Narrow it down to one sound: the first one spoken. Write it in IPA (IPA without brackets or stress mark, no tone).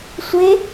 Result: sʷ